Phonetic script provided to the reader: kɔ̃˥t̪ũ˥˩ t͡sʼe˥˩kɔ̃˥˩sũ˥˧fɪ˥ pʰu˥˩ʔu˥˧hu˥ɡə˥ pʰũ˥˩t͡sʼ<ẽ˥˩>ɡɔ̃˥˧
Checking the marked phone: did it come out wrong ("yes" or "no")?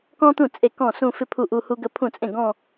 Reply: no